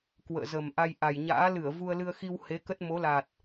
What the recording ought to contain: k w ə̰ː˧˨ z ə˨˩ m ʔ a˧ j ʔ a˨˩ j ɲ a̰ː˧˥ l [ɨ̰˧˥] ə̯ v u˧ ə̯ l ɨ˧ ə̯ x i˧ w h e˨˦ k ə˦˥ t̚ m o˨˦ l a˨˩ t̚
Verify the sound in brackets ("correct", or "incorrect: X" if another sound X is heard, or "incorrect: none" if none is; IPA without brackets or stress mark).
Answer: incorrect: ɨ˧˩